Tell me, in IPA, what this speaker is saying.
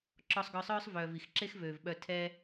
ǁ ɔ˧ sˤ ɡ œ˧ sˤ œː˦ sˤ v œː˨ v i˨ x ǁ e˦ x v øː˨ v ɓ œ˧ tʰ ɛ˦

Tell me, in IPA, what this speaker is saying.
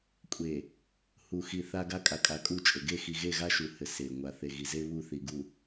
kʷʼ e˨ | h u˨ x i˨ θ a˦ ɡ a˦ kʼ a˨ kʼ a˨˦ kʼ u˦˨ t͡ʃʼ ɘ˨ ɡ e˦˨ x i˨ ɣ e˦˨ ɣ a˦ ʃ u˨ h ɘ˨ s e˨ ŋʷ a˨ θ e˨ ɣ i˨ z e˦ β u˦˨ θ i˨ ɡ u˨

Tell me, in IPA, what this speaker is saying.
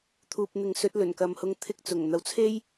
t̪ʰ uː˨ p̚ n̪ ɪ˨˥ ŋ s ɵ˨˥ t̚ l ɵ˨˩ n k ɐ˨ m h ʊ˧ ŋ t̪ʰ ɪ˧ k̚ t͡s ʊ˨˩ ŋ n̪ ɐ˨˥ w t͡sʰ e˥ j

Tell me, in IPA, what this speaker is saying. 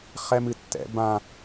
χ ɛ m ɨ tː ɛ̰ b ã

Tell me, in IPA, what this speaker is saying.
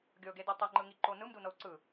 ɡʲ ɤ ɡ e d i tˤ ɛ ŋ͡ǃ ɯ ŋ i ǃ o n ɯ m d u n ɤ u̯ ǀ ɯ

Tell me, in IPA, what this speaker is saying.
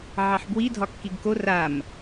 ʕ ɑ ħ b w i dʱ ɒ kː i ɡ k o r a m

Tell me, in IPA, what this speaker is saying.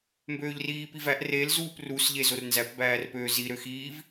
m b øː ʎ r iː p i v æ ʔ r e l z uː p r u s ʎ e z o r n z æ p b æː r p øː z i ɾ ø x iː v

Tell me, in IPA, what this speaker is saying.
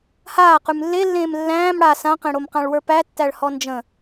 h aː q ʉ m lː e lː ẽː m lː æ̃ː m ɽ a s ã q ẽ ɽ o m q ã ɭ w ə˞ p æ tː æ ɭ h ɔ n d͡ʒ ə̃

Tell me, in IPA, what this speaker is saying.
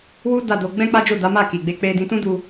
w u˦ d a˦˨ d o˧ ɡ͡b ɛ̃˦ k͡p a˦ d͡ʒ o˦˨ d a˨˦ m a˦˨ k i˨ ɡ͡b e˧ k͡p e˧ d ĩ˧ t ũ˦ d u˧

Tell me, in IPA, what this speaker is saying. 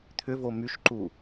t̪ʰ ʏ v o m y ʃ ǃ u

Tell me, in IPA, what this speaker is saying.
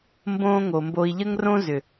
m b õː˦ ŋ o˨ m b o˧ i̯ ʎ ə˦ ŋ r õ˦ z ʏ˨

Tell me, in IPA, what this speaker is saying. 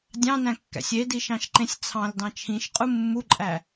dʲ ɑ̃ n æ̃ kː æ̰ sʲ e d i ʃ ɑ̃ ʃ ǃ ẽ sʲ t͡sʰ ɑ̃ l d ɑ̃ t͡ʃʰ ĩ ʃ qʼ u mː u ǃʼ æ

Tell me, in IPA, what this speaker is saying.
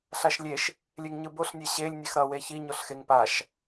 ɬ a ʃ lʲ e ʃ | lʲ e ŋ ɲ ɯ b o ɬ nʲ e ɕ e lʲ nʲ e x ɾ ʌ w e ç i ɲ o ɬ x e ŋ p a ʃ

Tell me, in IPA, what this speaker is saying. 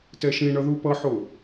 t ɛ ʃ ĩ ɳ ʌ ð u p ʌ ħ o

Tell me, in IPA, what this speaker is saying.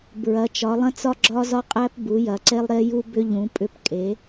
b ɹ ɐ˩˧ t͡ʃ ɒ˩˧ lˠ ɐ̃˦ t͡s ɒ˦ ɡ͡ǁ ɒ˦ z ɒ˦ qʼ æ˦ p b u˩˧ j ɐ˩˧ ǀ e˦ lˠ ɾ e˦ j u˦ b ʏ˦ ʎ ũ˩˧ pʼ ʏ˦ p kʼ e˩˧

